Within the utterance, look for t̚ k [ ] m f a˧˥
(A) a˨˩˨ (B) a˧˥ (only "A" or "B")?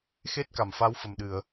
A